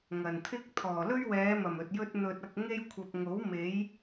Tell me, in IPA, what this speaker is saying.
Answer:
ŋɐ˨˩nt̪ʰɪ˥k̚ t̪ʰɔː˨˩lɵ˥ɥwɛː˨˧mɐ˨˩m ɵ˨t̚jɵ˥t̚ n̪ɵ˧t̚ɐ˧k̚ ŋe˥j kʷʰɐ˨p̚ŋo˨˥w me˨˥j

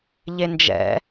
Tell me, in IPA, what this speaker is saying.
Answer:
ʎend͡ʒɛ̰

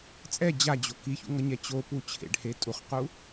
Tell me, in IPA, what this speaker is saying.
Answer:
t͡sʼɛ d͡ʑad͡ʑo kiçṵŋʌɲɛ t͡ɕopu t͡ɕʰḛɖhe tʼuχqu

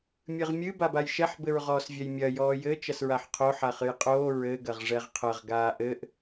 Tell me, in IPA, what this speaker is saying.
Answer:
mʲɨʁmʲɨ babajʃɛħ bɘɹʁɔːsvʲɛjmʲɐ jɔːjɘ t͡ʃɐsɹaħqʰo ħaχɨjqʼoː ɹɘ ɡɐʁʐɛʁqʰɐʁ ɡaːʔɘʔ

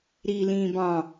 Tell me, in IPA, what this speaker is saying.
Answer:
ɾiːlĩːbɑ̃

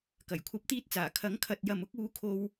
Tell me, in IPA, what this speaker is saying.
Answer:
kɐ˨˩jkʷʰɐ˨˥p̚t̪iː˧t̚t͡saː˨˩ kʰɐ˨˥ŋkʰɐ˨t̚jɐ˨mʊ˨˥k̚ uː˥ kʰo˥w

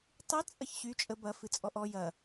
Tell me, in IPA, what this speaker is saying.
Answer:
tˤɨ t͡sʼɐçɕy t͡ʃʼə bɐ fɨt͡sʼɔʔɔ jɐ

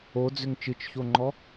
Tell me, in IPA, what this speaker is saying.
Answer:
od͡zʏŋ t͡ʃɯt͡ʃçoŋ͡ǃɔ

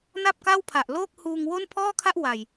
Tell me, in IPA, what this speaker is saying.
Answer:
na˥˩p̚ka˥˩wpʰa˨˩ʔ loː˥˩k̚huː˧ŋwo˥˩n pʰɔː˥˩kʰa˥˩ʔ wa˨˩j

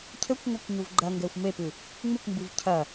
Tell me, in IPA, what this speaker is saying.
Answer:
cʰɘkʷŋʷɘkʷ ɲuvɡ͡ǃɐŋɡɛxʷ mepɨ | ŋ͡mɨkʷmbɨv cʰɐ

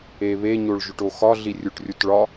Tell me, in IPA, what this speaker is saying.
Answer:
eβe ɲoɭʒoʈoxɒ ɮirʲuʈrʲutɭɒ

